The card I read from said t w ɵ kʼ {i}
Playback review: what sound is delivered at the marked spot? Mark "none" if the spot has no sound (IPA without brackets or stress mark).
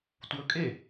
e